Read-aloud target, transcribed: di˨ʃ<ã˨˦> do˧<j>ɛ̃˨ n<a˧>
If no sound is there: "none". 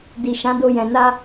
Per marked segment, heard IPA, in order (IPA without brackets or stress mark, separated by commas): ã˨˦, j, a˧